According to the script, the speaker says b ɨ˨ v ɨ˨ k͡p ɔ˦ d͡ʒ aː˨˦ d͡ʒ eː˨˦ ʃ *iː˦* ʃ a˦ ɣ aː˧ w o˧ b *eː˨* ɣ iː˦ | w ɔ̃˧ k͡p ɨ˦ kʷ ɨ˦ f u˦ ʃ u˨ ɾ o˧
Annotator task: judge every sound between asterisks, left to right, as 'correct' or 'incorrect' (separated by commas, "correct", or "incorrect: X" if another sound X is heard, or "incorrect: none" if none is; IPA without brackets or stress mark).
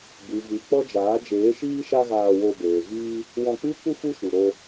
correct, correct